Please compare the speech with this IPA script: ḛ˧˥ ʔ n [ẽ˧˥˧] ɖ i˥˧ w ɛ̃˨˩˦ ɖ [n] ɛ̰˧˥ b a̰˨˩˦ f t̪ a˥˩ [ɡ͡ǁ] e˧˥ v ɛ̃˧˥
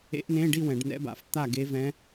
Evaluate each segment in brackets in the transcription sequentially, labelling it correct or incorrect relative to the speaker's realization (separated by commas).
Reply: correct, correct, incorrect